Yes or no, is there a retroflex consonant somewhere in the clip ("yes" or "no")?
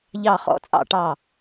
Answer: yes